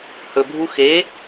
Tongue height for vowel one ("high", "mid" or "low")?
mid